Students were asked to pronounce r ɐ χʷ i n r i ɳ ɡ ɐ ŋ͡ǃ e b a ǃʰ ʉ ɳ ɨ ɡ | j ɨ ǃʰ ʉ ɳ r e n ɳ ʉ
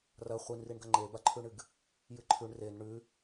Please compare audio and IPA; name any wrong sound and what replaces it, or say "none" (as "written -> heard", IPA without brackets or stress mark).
none